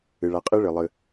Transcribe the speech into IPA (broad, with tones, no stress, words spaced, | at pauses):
ɨ˩ ɭa˨qʼɨ˥ ɭɨ˩lˠɨ˨